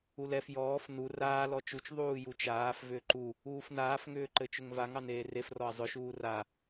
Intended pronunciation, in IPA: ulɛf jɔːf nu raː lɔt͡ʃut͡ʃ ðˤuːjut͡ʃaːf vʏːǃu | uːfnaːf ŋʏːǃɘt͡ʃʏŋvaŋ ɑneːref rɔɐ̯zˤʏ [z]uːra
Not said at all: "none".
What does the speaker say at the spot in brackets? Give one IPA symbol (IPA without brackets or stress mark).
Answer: ʃ